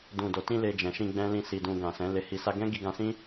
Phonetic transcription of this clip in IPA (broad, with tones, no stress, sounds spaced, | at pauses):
d ũ˨ d o˨ t ĩ˧ l e˧ d͡ʒ ɛ̃˨ ʃ ĩ˧ ɡ͡b ɛ̃˦ l ĩ˦˨ s i˧ d ũ˧ ɡ ã˨ s ɛ̃˨˦ l e˧ h i˧ s a˦ ɡ ɛ̃˦ ɡ i˧ ɡ ã˧ s ĩ˦